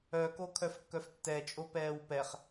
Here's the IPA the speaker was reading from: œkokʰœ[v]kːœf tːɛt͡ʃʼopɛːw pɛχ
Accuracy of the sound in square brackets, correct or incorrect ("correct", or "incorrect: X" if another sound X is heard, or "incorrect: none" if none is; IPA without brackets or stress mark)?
incorrect: f